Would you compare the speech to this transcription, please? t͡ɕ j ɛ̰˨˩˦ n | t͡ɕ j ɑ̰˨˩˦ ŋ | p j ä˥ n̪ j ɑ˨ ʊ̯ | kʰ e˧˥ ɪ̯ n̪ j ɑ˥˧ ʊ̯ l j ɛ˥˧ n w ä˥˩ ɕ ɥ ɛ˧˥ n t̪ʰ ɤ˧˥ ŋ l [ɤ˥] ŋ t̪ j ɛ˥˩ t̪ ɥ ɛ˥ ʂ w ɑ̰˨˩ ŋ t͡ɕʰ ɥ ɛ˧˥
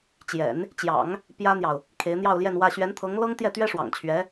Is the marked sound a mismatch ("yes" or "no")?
no